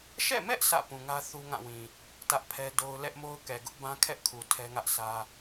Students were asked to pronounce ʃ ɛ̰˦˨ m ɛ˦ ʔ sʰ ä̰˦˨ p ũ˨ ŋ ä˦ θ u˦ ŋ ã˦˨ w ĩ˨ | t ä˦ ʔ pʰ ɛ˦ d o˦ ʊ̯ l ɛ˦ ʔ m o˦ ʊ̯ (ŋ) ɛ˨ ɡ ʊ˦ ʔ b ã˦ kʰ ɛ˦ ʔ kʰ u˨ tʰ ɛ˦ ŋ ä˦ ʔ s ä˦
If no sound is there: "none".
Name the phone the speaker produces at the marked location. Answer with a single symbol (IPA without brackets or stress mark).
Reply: k